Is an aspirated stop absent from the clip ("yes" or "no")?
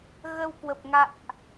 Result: yes